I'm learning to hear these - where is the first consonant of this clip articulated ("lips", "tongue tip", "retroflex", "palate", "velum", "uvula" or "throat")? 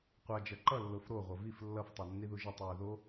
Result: uvula